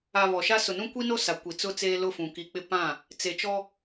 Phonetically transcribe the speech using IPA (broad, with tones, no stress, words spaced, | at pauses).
a˨ βɔ˨ʃa˦ sʊ˨nũ˦ kʷi˦no˦ sa˨kʷi˨t͡sʊ˦t͡seː˦ lʊ˦˨fũ˨ki˨k͡pɪ˦ pã˦˨ | t͡se˨t͡ʃɔ˦